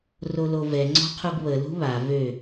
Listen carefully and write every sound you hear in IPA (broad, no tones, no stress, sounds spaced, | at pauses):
r o l o v ɛ ŋ͡ǀ ɔ̤ qʰ u ɡ β ə l ṳ β a v ø